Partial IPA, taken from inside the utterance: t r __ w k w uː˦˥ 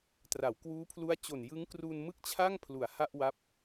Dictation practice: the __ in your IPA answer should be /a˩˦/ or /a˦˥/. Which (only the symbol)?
a˩˦